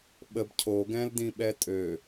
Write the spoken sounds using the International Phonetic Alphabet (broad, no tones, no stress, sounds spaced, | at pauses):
ɓ ə b cʰ o ɡ ɛ̃ l d ĩ ɓ ɛ tʼ ø